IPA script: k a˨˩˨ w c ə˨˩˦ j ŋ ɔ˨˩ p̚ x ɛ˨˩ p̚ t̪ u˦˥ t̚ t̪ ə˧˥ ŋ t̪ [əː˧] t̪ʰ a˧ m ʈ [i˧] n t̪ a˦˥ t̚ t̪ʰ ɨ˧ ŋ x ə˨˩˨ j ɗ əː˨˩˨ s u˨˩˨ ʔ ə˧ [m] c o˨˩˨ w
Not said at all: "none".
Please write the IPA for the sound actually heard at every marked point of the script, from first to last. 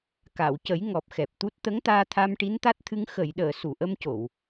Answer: aː˧, i˧˥, m

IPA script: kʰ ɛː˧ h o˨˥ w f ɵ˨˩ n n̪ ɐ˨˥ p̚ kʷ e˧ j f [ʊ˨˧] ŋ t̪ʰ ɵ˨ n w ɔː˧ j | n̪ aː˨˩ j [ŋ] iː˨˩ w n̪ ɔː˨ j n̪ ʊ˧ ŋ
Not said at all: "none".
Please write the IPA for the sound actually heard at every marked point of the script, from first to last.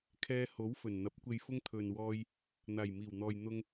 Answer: ʊ˥, m

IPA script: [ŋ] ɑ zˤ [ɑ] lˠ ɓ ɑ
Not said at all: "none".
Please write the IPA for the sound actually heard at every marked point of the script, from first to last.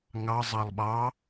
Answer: ŋ, ɑ

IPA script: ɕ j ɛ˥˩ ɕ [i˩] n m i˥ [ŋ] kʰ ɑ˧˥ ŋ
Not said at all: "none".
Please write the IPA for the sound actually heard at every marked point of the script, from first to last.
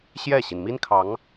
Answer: i˩, n

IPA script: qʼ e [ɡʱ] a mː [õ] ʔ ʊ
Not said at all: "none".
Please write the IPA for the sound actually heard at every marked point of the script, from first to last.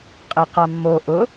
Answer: q, o

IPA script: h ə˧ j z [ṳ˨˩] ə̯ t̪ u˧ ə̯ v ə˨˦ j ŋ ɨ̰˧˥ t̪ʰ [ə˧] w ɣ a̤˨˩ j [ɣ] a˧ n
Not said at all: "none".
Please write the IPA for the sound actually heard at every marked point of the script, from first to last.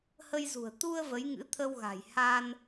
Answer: ṳ˨˩, ə˧, h

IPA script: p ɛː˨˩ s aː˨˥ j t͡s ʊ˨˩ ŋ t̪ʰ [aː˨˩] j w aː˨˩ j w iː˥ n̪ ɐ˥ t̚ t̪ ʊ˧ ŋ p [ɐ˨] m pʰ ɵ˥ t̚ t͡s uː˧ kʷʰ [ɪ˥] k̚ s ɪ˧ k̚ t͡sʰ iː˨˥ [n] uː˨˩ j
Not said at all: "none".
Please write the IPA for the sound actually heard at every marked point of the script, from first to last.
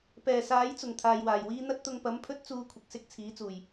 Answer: aː˨, ɐ˨˥, ɪ˨, t͡s

